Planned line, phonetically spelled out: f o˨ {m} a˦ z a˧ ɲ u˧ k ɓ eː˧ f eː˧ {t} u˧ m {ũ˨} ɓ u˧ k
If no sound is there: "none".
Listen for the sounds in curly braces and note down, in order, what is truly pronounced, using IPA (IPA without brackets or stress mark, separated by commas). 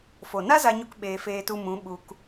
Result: n, t, ũ˨˦